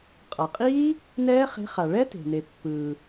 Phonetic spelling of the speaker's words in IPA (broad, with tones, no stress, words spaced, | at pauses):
qʼa˩qʼiː˦˥ | nɛː˦˥χe̤˨˥χa˩ ɭɛ˦˥te̤˩ne˩ pːɯː˩